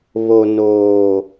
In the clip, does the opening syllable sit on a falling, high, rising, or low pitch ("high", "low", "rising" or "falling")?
low